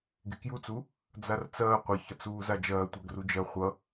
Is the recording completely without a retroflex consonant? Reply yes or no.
yes